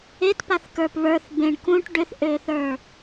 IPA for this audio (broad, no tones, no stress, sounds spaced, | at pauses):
e t p a θ k ə˞ p β ə˞ θ b ẽ ɳ k ũ ʈ ɖ ʏ θ ʔ ø θ ə˞